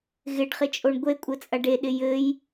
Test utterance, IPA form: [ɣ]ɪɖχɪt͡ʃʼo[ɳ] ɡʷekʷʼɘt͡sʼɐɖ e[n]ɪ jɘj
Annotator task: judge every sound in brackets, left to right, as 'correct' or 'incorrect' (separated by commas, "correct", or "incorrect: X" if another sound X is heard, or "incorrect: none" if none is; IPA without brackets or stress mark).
correct, correct, incorrect: ɗ